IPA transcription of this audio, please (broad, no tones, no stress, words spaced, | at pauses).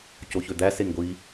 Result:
coçød̪æ seŋɡʷi